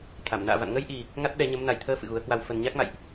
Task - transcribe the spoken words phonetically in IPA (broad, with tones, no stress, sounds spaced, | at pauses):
t̪ʰ a˧˩ m n a̰ː˧˨ v a̰˧˨ n ŋ ə˧ j ʔ i˨˩ | ŋ a˦˥ t̚ ɗ ɛ˨˦ ɲ ə˨˦ m n a˨˩ j t̪ʰ əː˧ f ɨ̰˧˨ ɣ u˨˦ ə̯ k w a˧ w f ə˨˩ n ɲ a˦˥ k̚ m a̰˧˨ j ʔ